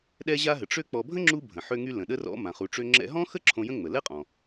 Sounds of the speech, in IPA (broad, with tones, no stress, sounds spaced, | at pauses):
ɗ ɛ˧ ʑ a˧ ɦ ə˩ ʈ͡ʂ ø˥ k͡p ɔ˧ bʱ ə̃˥ ŋ͡ǁ u˧ bʱ ə̃˩ ħ ø˧ ŋ y˧ l ə̃˩ ɗ ə˧ r ɔ̰˧ m ã˩ χ u˩ ʈ͡ʂ ø˧ ŋ͡ǁ ɛ̰˧ ɦ ɔ̃˥ x ə˥ ǁʰ õ˧ j ə̃˥ ŋ͡m ə˩ l ɛ˥ qʼ ɔ̃˩